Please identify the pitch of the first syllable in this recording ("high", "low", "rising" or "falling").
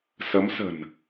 rising